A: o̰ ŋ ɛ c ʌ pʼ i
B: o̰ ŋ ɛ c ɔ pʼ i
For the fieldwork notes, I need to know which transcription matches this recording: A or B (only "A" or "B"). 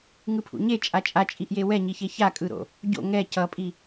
A